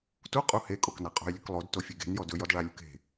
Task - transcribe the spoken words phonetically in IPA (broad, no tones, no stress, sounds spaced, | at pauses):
t u qʼ u h e kʼ o k n a qʼ o̤ j lʲ ɵ k lˠ o d t o fʲ o ɡ e̤ n j ɔ d ɵ j ɔ d ɭ a lʲ ṳ k e̤